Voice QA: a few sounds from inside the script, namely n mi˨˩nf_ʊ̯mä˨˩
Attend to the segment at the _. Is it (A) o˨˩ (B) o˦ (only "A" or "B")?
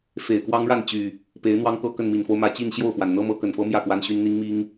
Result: B